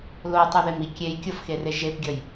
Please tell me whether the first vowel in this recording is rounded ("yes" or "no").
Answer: yes